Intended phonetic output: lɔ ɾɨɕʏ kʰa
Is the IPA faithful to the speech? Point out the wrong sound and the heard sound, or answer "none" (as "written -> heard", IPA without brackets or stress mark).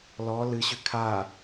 ɾ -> l